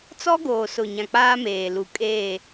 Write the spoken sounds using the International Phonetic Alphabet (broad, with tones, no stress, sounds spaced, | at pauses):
t͡s ɔ˦ ɡ oː˨ s ʊ˨ ɲ ã˨ k͡p aː˦ m eː˨ l u˨ kʼ eː˦˨